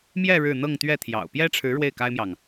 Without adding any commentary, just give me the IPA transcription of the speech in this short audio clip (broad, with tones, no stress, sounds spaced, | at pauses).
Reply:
m j ɛ˥˧ ɻ ɻ̩˥˧ n̪ ɤ˥˧ ŋ t̪ ɥ ɛ˥˩ t̪ʰ j ɑ̰˨˩ ʊ̯ p j ɛ˥ ʈ͡ʂʰ ɻ̩˧˥ ɻ w e˥˩ ɪ̯ k a˥ ɪ̯ m j ɑ˨ ŋ